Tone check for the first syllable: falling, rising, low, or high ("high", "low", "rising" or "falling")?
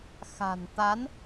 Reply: low